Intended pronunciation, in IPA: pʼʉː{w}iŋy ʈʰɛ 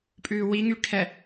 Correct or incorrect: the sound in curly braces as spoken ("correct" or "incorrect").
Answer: correct